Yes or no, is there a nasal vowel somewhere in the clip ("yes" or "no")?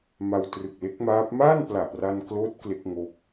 no